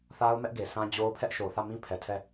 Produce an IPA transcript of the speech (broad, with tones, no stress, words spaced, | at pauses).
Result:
θa˦ʊ̯mɛ˦ʔ ɡe˨sã˦d͡ʑo˦ʊ̯ pʰɛ˦ʔʃo˨θä˦˨mĩ˦ pʰɛ˨tʰɛ˦˨